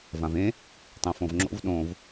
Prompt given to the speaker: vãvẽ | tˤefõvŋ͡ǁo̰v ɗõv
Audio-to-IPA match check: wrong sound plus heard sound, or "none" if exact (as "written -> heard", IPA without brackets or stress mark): e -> ẽ